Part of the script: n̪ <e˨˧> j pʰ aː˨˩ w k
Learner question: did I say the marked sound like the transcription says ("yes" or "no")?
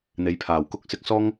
yes